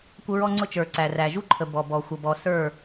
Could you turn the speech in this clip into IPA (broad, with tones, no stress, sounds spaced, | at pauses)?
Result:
kʷ ə˦ ɹ ɔ˦ ŋ͡ǀ ʊ˦ t͡ʃ ə˞˨ ǀ æ˨ r æ˨ ʒ u˦ ǃʰ ə˨ b ɔ˨ b ɔ˨ xʷ ʌ˨ b ɔ˨ s ə˞˦˨